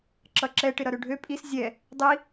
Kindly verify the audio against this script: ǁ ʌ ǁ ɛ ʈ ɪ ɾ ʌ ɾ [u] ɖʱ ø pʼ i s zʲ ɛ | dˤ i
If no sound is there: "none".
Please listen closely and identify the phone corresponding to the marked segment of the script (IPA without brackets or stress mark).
ø